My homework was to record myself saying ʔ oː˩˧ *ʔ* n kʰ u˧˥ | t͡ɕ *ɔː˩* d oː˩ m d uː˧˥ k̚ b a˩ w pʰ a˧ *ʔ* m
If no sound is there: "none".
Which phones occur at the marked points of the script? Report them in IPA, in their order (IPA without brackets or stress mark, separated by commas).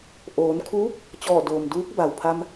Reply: none, ɔː˧˩, none